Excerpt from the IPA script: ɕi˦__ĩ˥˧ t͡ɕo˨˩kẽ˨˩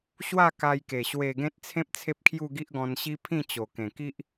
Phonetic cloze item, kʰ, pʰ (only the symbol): pʰ